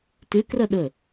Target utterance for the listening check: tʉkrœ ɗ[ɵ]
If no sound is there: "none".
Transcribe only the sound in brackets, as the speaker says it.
ɵ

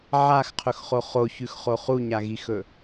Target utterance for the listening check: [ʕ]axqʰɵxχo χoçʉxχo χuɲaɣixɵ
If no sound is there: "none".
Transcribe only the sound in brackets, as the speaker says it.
ʕ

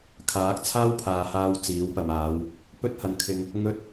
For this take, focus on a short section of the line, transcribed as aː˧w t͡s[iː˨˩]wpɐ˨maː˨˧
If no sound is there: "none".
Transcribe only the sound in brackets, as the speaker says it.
iː˨˥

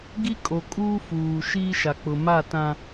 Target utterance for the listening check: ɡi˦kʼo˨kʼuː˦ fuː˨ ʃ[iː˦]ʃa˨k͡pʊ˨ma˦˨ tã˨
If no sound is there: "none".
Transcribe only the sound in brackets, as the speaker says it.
iː˦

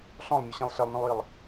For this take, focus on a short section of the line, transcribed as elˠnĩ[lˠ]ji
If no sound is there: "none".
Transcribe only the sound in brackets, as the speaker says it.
lˠ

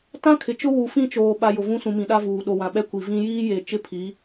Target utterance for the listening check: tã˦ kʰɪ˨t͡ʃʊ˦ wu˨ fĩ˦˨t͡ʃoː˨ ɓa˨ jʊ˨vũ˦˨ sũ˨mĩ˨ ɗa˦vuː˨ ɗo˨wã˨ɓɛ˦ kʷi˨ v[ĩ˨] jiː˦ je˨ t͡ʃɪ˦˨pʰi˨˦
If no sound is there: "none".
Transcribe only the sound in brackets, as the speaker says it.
ĩ˦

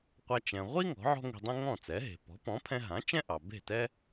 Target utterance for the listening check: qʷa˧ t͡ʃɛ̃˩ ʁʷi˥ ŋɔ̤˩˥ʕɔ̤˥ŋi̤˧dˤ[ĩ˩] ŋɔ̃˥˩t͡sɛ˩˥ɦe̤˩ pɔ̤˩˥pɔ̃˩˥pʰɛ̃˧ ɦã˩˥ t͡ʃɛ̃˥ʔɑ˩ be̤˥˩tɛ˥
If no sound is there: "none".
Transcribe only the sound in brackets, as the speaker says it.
ĩ˥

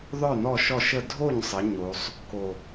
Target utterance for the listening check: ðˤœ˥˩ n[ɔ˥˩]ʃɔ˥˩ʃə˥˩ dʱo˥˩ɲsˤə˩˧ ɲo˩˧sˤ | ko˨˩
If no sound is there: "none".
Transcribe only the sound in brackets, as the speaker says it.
ɔ˥˩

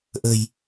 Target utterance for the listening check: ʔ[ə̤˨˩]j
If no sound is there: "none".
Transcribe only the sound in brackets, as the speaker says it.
ə̤˨˩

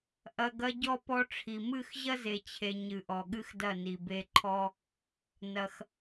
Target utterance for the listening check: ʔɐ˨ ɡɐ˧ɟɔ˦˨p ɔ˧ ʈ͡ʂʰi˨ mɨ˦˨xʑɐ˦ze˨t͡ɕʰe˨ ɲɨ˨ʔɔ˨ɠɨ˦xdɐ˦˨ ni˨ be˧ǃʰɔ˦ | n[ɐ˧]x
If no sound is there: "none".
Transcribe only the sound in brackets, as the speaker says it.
ɐ˧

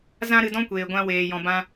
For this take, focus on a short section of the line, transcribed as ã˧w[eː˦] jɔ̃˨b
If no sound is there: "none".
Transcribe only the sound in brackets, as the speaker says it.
eː˨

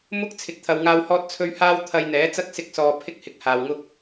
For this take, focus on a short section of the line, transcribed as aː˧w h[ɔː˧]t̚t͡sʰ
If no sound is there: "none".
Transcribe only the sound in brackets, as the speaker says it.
ɔː˧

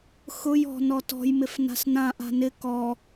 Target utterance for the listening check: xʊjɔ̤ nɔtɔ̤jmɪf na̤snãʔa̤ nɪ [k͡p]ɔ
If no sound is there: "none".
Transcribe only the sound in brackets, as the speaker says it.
k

